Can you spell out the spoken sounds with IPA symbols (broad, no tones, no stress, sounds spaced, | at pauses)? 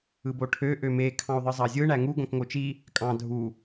ɯ b o ʈʰ ø ʔ ø m e kʰ ɑ̃ u̯ ðˤ ɯ zˤ ɑ zʲ ɯ ɳ æ ŋ u ɡ õ k ŋ o t͡ʃ i | kʼ ɑ̃ dʱ u